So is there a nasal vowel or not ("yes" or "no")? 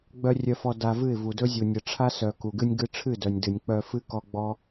no